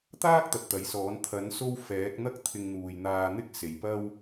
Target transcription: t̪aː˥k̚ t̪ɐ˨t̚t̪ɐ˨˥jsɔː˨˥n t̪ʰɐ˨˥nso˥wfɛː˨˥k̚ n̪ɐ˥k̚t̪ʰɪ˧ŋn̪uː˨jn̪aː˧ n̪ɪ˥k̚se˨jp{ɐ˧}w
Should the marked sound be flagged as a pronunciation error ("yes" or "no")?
yes